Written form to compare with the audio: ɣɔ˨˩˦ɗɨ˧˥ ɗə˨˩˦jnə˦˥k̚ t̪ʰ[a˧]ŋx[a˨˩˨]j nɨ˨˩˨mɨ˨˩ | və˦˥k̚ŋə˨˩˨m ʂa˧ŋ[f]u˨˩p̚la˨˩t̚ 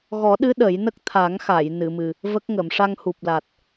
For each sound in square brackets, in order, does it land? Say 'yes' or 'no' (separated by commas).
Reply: no, yes, no